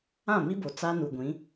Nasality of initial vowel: nasal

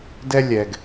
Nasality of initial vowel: oral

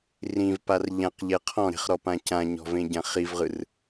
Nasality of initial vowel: nasal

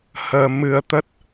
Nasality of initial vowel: oral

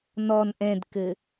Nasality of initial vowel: oral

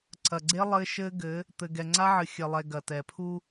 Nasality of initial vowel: oral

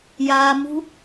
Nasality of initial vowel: oral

